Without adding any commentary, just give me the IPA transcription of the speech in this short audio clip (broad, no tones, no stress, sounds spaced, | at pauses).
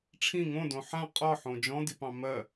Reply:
ʈ͡ʂʰ ĩ ŋ õ d õ ħ ã qʼ ɒ ħ õ d͡ʒ ɔ̃ d i p ɑ̃ m ɜ